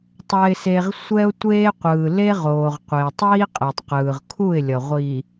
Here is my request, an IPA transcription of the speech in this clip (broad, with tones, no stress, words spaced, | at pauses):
tˤɛ˨ɪ̯se˨ʁ sʷɛ˦ʊ̯tʷeː˦qʷɯː˨ le˦ʁoː˨ʁ qʷe˨tˤiː˦qʼɛ˨tˤqɯː˨ʁ kʰu˦˨ɪ̯lʲʌ˨ʁʷiː˨